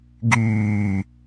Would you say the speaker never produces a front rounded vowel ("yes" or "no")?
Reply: no